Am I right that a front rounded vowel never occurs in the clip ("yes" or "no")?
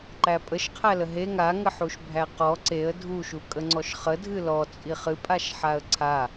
yes